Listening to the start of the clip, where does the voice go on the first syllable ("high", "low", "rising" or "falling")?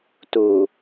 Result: low